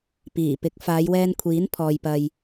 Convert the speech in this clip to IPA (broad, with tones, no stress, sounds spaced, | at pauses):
p iː˨˩ p ɪ˨˥ k̚ f aː˨˧ j w ɛː˧ n kʷʰ iː˨˥ n pʰ ɔː˨ j p ɐ˨ j